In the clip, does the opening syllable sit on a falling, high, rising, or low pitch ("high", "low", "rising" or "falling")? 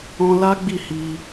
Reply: high